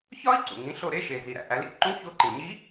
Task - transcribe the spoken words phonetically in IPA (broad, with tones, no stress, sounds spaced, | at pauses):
ç ɒ˥ i̯ ǀ ṵ˩ ŋ ĩ˩˧ ɬ o˧ ɾ e˧˥ ʃ e˩ z i˩ ɾ æ̰˩ ʔ æ˩˧ l ḭ˧˥ ǃ ũ˧˥ ç o˧ ǃ ĩ˩ ɲ i˧˥